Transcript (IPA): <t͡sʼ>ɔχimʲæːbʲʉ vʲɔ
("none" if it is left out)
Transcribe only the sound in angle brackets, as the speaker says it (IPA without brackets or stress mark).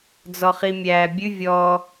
d͡z